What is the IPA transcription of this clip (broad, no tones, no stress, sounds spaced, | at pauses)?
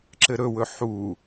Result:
ǁ ɘ ɾ ɵ w ɵ ħ u